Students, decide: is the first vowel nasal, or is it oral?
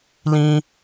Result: nasal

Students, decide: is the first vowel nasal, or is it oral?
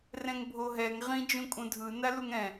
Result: nasal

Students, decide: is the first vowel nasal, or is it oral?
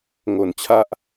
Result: oral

